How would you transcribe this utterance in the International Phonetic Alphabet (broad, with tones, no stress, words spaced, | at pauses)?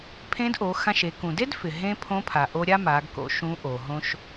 pʰẽ˧˥dʔo˩˧xã˧ʃe˩˧ kũ˩de˥dfɪ˩ ɦẽ˧ pʰõ˧˥pʰa˩ʔo˧ ɾʲa˥ma˩˧ɡ ko̰˧˥ʃũ˧˥ ʔo˩ɦõ˥ʃ